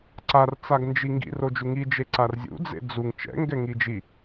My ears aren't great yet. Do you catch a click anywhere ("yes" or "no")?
yes